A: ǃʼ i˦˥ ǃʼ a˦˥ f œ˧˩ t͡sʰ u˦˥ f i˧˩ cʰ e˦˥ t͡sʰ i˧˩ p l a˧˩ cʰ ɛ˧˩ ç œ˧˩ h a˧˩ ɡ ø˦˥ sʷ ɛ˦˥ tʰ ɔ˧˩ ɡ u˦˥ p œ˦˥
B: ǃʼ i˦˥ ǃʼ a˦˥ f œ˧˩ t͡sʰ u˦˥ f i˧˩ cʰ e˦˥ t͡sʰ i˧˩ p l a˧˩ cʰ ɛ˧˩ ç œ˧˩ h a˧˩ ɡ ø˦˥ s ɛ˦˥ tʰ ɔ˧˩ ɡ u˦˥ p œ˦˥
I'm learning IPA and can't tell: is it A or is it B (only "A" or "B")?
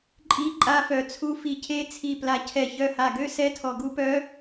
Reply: B